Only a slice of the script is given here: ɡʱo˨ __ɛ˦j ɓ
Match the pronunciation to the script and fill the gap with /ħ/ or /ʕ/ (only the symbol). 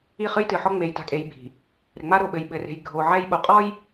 ʕ